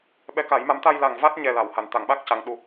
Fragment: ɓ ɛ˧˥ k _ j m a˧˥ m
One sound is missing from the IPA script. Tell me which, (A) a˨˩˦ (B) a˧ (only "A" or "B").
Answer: A